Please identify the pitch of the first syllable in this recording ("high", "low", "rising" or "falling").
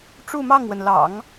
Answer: falling